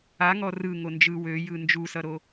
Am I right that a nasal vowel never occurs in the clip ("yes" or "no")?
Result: yes